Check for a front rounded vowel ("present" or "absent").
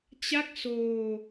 absent